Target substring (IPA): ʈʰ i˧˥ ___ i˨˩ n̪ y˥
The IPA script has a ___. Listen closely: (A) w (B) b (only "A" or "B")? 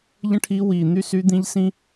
A